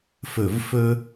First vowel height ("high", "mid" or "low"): mid